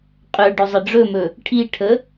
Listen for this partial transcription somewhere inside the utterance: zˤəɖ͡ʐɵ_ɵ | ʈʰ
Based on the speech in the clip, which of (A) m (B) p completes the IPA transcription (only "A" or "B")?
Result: A